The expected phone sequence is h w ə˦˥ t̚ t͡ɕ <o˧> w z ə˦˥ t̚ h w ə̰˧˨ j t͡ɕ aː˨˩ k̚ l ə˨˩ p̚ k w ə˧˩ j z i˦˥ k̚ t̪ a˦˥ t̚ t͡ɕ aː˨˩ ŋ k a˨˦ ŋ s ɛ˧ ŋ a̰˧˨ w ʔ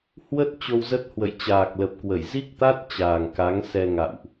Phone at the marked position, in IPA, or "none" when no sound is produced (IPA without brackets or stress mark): o˧